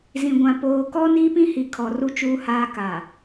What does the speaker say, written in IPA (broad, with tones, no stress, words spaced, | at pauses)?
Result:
zĩ˨ɡʷã˨ poː˨kɔ˦ niː˦pĩ˦hi˨kʰɔ˨ ru˦t͡ʃuː˦haː˦ ka˨